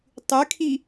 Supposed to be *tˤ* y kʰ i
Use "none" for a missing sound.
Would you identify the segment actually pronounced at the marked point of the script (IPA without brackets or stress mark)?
tˤ